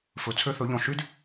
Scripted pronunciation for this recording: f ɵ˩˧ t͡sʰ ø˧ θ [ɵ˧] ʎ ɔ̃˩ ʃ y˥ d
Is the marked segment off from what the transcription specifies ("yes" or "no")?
yes